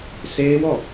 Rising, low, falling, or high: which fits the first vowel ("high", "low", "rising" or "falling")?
high